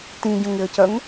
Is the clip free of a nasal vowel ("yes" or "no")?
no